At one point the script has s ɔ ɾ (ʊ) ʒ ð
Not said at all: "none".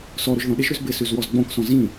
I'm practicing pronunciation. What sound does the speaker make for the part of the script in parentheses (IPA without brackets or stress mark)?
ʊ